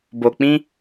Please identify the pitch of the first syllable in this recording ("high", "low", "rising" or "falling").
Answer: low